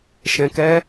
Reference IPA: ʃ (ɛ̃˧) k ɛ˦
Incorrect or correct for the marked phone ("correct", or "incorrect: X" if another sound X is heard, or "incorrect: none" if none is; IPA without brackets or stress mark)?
correct